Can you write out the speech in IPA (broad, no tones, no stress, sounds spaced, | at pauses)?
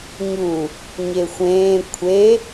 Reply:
ɲ u | ɲ e xʷ ẽː kʷʰ e